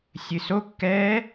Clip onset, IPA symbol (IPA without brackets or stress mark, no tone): sʲ